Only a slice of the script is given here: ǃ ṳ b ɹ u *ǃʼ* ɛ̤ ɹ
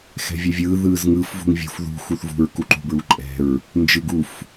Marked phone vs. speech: correct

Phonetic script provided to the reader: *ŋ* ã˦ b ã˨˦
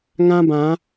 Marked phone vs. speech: correct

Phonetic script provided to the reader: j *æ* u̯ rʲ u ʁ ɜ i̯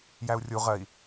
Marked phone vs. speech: correct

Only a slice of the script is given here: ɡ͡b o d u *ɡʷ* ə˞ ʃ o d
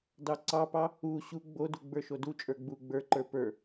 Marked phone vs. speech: incorrect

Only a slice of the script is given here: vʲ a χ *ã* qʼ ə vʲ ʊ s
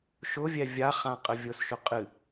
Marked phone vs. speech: correct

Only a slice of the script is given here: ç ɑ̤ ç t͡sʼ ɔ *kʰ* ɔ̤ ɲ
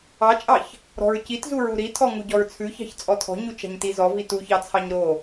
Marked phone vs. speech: incorrect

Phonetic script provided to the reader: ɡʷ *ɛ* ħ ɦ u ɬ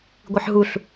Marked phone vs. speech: incorrect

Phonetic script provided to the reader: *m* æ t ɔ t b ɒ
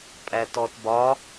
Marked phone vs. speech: incorrect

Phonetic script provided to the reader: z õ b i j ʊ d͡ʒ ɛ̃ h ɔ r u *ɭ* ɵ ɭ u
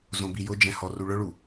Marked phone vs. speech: correct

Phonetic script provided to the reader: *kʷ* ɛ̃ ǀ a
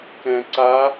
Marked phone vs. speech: incorrect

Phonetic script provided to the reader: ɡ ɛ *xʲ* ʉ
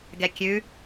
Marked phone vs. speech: incorrect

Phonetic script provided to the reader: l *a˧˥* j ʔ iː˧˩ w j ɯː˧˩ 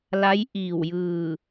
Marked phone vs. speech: correct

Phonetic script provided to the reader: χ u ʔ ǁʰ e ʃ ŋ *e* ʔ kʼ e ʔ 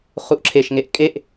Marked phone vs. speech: correct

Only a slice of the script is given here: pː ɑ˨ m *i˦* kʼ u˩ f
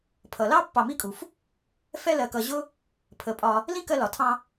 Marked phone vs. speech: correct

